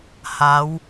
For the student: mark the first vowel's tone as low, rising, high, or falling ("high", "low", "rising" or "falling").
rising